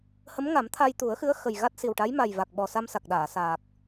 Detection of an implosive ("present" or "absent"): present